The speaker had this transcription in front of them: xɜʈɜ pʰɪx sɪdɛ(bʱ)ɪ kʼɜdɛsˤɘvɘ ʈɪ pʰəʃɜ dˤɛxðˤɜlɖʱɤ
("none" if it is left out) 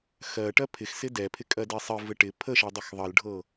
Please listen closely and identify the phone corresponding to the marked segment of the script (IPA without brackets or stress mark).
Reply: pʰ